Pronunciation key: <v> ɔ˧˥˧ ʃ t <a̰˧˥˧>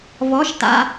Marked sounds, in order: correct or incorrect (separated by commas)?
correct, correct